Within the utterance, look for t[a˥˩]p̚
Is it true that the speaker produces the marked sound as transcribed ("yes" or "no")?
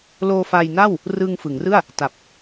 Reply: no